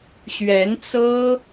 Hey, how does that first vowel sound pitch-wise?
rising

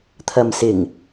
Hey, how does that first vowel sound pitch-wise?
low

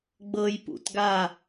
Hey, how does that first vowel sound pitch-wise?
high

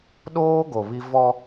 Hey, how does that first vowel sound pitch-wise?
high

